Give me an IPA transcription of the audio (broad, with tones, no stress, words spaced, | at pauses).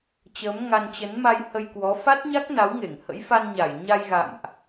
t͡ɕəː˨˦mŋa˧nt͡ɕə˨˦nma˧j hə˧jkwɔ˨˦ fa˦˥t̚ɲa˦˥k̚ na˨˦wŋe˧˩ŋ hə̰˧˥jfa˧nɲa˧˩j ɲa˧jɣa̰˧˨mʔ